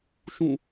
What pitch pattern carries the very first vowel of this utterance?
falling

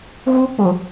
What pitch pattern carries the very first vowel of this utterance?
high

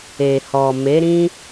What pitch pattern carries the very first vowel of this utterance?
low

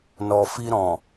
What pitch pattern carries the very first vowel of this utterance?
low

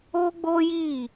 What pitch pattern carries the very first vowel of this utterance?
high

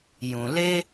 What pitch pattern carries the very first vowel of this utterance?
low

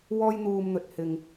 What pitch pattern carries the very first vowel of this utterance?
high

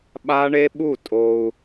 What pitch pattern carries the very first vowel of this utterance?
high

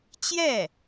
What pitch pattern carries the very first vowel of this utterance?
falling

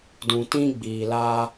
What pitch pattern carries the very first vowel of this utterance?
low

